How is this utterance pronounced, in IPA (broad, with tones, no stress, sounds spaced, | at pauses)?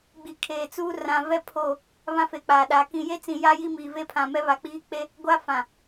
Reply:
ɡ͡b i˨ kʰ eː˨ t͡s uː˦ r ã˨ v ɛ˦˨ pʰ o˦˨ | β ã˦ f e˨ k͡p aː˨ ɗ aː˨ k ĩ˨ j e˦ t͡s ĩ˨ j a˦ j i˦ m iː˨ v e˦ pʰ ã˨ m ɛ˦ β a˨ k͡p iː˦ k͡p e˦ | ɡʷ a˦ f ã˨